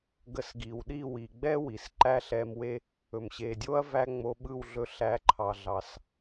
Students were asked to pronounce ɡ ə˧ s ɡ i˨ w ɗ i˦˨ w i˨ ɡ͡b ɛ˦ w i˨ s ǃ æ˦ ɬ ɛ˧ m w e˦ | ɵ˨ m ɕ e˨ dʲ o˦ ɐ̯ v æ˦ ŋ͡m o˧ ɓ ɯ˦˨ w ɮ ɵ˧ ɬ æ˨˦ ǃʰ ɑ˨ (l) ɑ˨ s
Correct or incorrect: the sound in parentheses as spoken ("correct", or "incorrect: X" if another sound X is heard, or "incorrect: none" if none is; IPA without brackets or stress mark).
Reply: incorrect: ɮ